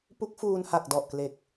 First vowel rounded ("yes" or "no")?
yes